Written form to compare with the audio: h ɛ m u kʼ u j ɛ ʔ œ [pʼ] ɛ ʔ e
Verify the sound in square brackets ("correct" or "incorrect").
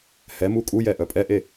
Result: correct